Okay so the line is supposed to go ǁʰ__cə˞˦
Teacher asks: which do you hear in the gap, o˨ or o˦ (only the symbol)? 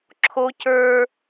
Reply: o˦